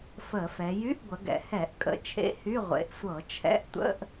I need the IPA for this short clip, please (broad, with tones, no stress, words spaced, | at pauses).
fə˧˩˧fɛ˩˧ jy˧˥˧ʔɡʷə˩˧ɡɛ̰˩˧hɛ˧˩˧ʔ kʼə̰˧˥˧t͡ʃʰḛ˧˥˧hy˧˥˧ ʁʷḛ˩˧ʔ sʷɤ˧˩˧ t͡ʃʰɛ̰˧˥˧ʔtʷə̰˧˥˧ʔ